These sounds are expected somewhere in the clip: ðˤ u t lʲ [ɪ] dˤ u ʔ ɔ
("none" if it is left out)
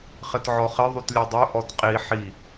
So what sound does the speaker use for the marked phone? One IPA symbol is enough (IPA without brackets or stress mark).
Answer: ɛ